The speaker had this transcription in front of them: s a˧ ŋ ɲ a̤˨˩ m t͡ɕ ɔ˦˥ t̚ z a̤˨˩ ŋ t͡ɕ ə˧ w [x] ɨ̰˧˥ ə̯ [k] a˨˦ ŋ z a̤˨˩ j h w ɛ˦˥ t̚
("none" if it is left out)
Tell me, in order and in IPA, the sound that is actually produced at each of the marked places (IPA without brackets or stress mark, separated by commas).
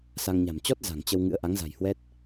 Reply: ŋ, ʔ